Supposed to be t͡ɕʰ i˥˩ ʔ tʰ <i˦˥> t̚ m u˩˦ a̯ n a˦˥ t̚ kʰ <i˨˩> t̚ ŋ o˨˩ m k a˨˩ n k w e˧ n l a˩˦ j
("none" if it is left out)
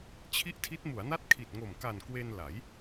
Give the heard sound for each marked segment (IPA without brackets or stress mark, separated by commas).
i˦˥, i˨˩